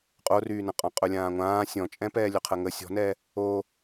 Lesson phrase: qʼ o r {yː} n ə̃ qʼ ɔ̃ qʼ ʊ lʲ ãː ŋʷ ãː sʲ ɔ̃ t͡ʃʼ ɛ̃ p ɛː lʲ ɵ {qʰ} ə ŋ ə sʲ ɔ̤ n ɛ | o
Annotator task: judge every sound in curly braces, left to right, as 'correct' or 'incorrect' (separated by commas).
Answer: correct, correct